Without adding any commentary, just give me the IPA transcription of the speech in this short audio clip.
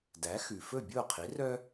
d æ˩˥ x ʉ˩ f ɵ˥˩ bʲ o˥˩ qʰ i˩˥ r œ˥

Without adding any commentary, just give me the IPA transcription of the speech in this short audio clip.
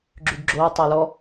ɡ͡ǁ y ɡ ɡ͡ǁ o ɪ̯ tˤ e l ɔ

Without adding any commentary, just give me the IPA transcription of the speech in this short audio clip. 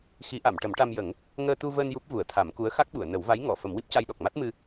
x i˨˩˦ ʔ a˨˩˨ m ʈ ə˨˩˦ m ʈ a˧ m j ə˨˩˦ ŋ | ŋ əː˧ t̪ u˧ v əː˧ n j u˦˥ p̚ v u˨˩˦ ə̯ t̪ʰ a˨˩˦ m k u˧˥ ə̯ x a˦˥ k̚ ɓ u˨˩˨ ə̯ n ə˨˩˦ w v a˧˥ j ŋ ɔ˨˩˨ f ə˨˩˦ m w i˦˥ p̚ c a˧ j ɗ ɔ˨˩ k̚ m a˦˥ t̚ m ɨ˧

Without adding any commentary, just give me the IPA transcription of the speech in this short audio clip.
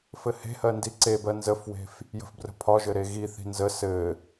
f ɘ h e̤ h ɜ n d i ǀ e b ɜ n z ə f w e̤ f | j ə̤ f b r ə̤ pʰ ɒ ʒ ɘ ɾ e ɣ i θ i̤ n z ə s ɘ

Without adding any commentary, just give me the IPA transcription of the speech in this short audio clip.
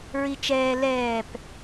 ɹ i t͡ʃ ɛː l ɛː p

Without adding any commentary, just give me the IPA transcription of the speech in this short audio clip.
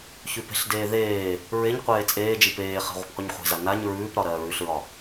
ç ʉ p e̤ ɬ d eː ð eː | ɹ e ɲ qʷ eː t͡sʼ eː d͡ʒ i p eː χ e̤ ʁʷ e̤ p qʷ i ɲ χʷ e̤ z a n a ɲ ɹ ʉː p ɾ ɒ ɾ ɜː ɹ ʉ ɬ ɹ ɒ

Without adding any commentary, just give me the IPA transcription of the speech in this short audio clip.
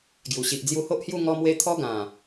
ɡ j u˨˩ ɕ i˨ ʔ d͡z j u˧ h o˦ ʔ h j u˥˧ ŋ ɔ˧ m w e˧ t̪ʰ ɔ˦ ɡ ã˨˩

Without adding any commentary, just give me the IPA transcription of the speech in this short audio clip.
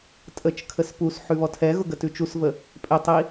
tʼ ə t͡ʃ kʰ ə s p u s ħ ʉ β ɔ tʰ ɛ ɣ ʊ ɡ ə t ʉ t͡ʃ u s v ə | pʼ e tˤ i

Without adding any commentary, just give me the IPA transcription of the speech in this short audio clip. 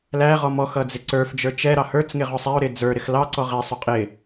l æ ʁ ɔ m ɔ x ʌ d͡z ɪ ǀ ə˞ f d͡ʒ ə˞ t͡ʃ ɛ ɾ ɑ h ə˞ t͡s ŋ ɪ ʁ ʊ sˤ æ ʊ̯ ɾ ɪ d͡z ə˞ ɾ ɪ x l ɑ ǀ ɔ ʁ æ sˤ ʊ qʼ ɪ

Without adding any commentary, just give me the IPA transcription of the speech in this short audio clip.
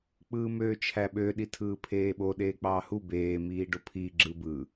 k͡p ɯː m øː t͡ʃʰ æ ɓ ø ɗ i tʰ ɯː pʰ eː ɓ o ɗ eː k͡p ɑː h u b eː m iː ɖ o pʰ iː ɡ͡ǁ ɯ b ɯ

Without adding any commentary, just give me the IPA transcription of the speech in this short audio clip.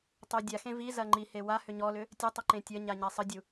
tˤ ʏ dʲ a x ẽ v i z ɐ ŋ͡ǃ i h e w a h ʏ ɲ ɔ l ʏ | tʲ ɐ tˤ ə ǃ ẽ tʲ ɐ ɲ a ɲ a sˤ ə dʲ u

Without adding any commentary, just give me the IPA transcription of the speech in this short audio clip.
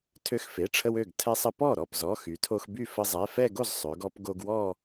tʰ ø˧ x f e˩˧˩ ʈ͡ʂʰ ə˧ w ø˥˩ ɡ tʰ ɛ˧ sˤ ə˧ p ɔ˥˩ ɾ ɔ˥˩ p z ɔ˩˧˩ x y˩˧ tʰ o˧ x b y˥˩ f ə˧ zˤ ɛ˩˧˩ f ɛ˥˧ ɡ o˥˩ z sˤ ø˩˧ ɡ ɔ˧ p ɡ o˧ ɡ w ɔ˥˧

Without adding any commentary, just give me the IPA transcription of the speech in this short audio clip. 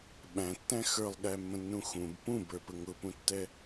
ɓ æ̃ tː æ̃ x ə˞ lˠ ɠ æ mː ə̃ nː ũ x ũ b p ũ b ə˞ p ə ŋ ʊ p ũ tː ɛ

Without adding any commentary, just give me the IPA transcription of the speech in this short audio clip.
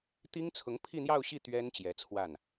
t̪ i˥ ŋ t͡sʰ ʊ˧˥ ŋ pʰ i˥˧ n̪ j ɑ˥˧ ʊ̯ ɕ i˥˩ t̪ ɥ ɛ˥ n t͡ɕ j ɛ˧˥ t͡sʰ w a˥˩ n

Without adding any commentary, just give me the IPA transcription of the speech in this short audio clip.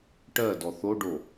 ʈ ɜ d ɔ θ o ɖ o

